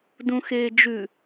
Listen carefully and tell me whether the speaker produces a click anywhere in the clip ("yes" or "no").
no